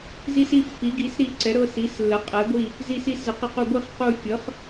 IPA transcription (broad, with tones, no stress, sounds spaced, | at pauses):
z i˦˨ s i˦˨ pː i˩˥ ɡ i˩˥ s ɾ i˦˨ ǀ ɛ˩˥ ɾ ɤ˦˨ s i˩˥ s lː ə˩˥ qʼ ɛ˩˥ ɡʷ i˦˨ | z i˦˨ s i˦˨ s z ə˩˥ q ə˦˨ q u˦˨ ɡʷ i˦˨ χ q u˦˨ fʲ ɤ˩˥ χ